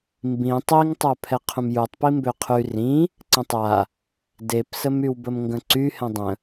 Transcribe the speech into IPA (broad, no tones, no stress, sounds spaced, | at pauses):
m b ĩ tˤ i ŋ tˤ œ pʰ ɛ qʰ ũ m j u tˤ p i m b ø qʰ y r ĩ | ǀ ə̃ tˤ a | d e p s ə m y w b ə m ŋ ɡ ə̃ ǀ y h ɛ̃ dˤ ə̃